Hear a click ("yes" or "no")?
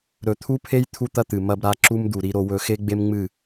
yes